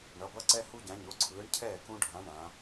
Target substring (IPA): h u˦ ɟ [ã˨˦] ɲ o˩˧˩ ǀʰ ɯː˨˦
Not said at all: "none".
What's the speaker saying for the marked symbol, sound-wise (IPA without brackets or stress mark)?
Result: ã˨˦